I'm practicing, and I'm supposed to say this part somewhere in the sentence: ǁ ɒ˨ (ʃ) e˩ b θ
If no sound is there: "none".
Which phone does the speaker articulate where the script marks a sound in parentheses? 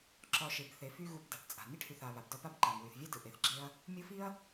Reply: ʃ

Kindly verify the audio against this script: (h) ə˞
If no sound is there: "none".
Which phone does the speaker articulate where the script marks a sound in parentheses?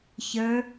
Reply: ç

